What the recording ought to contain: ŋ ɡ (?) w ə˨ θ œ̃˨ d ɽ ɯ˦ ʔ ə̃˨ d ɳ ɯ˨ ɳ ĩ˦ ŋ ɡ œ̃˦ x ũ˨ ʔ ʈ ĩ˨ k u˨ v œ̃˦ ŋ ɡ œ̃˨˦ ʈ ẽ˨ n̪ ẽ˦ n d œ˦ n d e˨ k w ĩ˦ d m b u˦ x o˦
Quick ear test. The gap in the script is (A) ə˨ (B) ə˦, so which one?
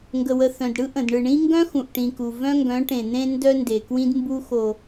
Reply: A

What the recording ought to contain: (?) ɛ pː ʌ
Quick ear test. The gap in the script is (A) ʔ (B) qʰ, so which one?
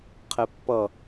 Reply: B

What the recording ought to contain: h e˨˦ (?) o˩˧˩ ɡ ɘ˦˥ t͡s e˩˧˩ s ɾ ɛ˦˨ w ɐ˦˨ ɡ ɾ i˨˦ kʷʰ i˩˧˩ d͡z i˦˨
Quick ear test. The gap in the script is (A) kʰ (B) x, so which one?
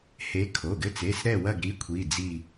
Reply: A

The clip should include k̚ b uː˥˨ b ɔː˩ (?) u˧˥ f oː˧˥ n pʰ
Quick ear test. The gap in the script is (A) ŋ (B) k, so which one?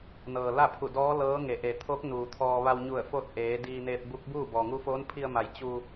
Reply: A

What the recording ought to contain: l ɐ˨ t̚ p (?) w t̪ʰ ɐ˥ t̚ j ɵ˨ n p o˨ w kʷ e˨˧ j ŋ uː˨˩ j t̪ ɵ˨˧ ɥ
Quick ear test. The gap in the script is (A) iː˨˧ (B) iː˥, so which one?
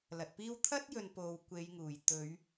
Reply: B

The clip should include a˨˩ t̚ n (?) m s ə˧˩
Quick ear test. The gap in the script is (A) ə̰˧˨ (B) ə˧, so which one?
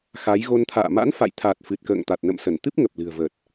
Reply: A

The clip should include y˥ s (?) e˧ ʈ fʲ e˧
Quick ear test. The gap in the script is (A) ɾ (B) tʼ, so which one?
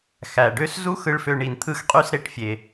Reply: A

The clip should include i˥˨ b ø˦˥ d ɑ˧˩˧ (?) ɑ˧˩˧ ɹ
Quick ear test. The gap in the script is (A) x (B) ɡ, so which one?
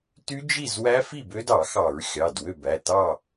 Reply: A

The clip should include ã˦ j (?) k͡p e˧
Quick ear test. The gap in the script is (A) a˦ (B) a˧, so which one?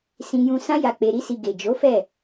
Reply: B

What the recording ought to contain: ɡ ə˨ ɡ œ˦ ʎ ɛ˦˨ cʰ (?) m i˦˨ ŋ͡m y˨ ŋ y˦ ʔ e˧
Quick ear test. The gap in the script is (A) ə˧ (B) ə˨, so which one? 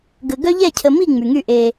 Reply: B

